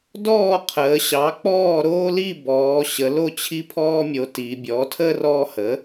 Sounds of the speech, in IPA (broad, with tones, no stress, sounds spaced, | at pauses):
d ɔː˥˩ qʰ əː˩˧ ɕ ɑ˩˥ k͡p ɔː˥˩ ɾ oː˦ l i˥˩ b ɔː˩˧ ɕ ə˩˧ l o˥˩ t͡ɕʰ i˦ pʰ ɔː˦ mʲ o˩˧ t i˩˧ bʲ ɔ˩˥ tʰ ə˦ r ɔ˦ h ə˩˥